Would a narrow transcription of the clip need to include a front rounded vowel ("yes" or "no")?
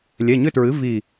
yes